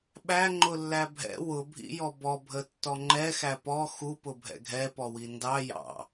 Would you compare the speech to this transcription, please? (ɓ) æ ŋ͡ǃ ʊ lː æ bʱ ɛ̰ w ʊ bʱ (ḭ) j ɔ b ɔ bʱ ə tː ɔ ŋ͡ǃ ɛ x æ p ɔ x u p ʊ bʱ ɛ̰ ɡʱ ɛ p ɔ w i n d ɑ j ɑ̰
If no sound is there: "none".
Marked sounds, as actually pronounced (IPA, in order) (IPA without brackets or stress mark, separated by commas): ɓ, ḭ